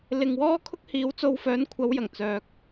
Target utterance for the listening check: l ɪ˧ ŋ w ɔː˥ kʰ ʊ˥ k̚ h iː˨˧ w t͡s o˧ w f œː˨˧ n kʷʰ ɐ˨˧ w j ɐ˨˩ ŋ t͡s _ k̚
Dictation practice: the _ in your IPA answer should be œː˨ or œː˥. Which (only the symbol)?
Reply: œː˨